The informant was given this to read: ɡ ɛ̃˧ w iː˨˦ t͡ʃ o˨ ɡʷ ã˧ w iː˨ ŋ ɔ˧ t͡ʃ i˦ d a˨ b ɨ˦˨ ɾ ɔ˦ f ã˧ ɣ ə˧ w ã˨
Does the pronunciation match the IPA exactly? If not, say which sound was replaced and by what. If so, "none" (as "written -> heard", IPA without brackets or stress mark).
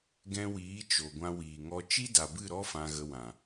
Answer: none